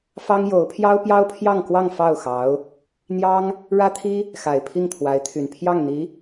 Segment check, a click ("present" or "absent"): absent